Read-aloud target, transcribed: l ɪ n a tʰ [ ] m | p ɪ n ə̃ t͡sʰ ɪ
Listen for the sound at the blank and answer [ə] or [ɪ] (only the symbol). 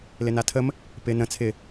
ə